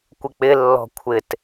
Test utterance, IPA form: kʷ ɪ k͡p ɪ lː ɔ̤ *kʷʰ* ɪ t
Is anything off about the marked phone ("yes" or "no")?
no